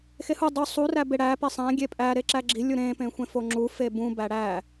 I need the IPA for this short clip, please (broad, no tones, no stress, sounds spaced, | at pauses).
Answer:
x e h u dˤ u sˤ u r æ b e ɽ æ p e sˤ æ̃ ɡʲ e pʼ æ ɾ e ǁ æ ɡ͡ǁ i lʲ u ɾ ẽ p ẽ xʷ ẽ f o ŋ͡ǁ u f e b ũ b æ ɽ æ